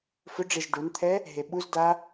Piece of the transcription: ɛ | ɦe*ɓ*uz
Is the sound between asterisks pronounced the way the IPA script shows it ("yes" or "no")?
yes